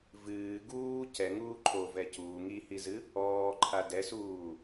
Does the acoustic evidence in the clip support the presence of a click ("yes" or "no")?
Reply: yes